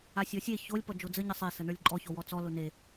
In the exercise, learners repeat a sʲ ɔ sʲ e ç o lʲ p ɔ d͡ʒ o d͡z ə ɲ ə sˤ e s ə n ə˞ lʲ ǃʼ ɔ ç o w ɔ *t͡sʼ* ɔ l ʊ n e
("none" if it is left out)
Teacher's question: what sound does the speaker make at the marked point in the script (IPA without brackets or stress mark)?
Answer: t͡s